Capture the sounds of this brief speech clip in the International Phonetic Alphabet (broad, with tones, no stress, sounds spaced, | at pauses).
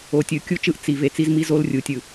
o˨ tʲ ɯ˨ kʲ u˦ t͡ʃ ɯ˦ ʔ t͡s i˨ v e˨ t͡s i˦ z m i˦ z o˦ l rʲ u˨ tʲ ɯ˨